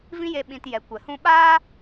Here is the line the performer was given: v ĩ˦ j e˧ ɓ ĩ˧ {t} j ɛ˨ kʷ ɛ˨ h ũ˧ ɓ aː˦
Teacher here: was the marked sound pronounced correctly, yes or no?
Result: yes